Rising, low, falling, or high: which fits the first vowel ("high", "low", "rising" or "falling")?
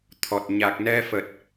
low